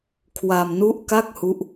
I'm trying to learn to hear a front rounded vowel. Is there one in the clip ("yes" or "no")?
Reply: no